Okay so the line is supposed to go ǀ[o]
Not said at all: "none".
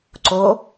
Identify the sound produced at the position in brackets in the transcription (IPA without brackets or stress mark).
o